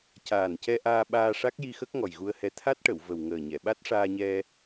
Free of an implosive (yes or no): no